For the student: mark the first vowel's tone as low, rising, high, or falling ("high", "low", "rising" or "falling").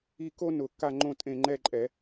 falling